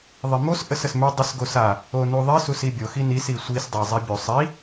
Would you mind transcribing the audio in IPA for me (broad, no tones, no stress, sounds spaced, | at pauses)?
ðˤ e m o s ʔ ə s ə s m ʉ dˤ ə s ɡ o s a | o n u ðˤ i s u s i bʲ o x i n i s i sʷ i s dˤ a zˤ e bʲ u sˤ i